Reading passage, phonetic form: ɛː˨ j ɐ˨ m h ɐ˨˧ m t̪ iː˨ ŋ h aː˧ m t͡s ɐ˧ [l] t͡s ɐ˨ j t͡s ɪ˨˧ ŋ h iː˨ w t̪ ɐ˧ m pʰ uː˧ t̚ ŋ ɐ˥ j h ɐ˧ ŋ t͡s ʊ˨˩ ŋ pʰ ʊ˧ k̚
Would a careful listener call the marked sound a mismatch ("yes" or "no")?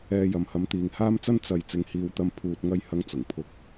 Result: yes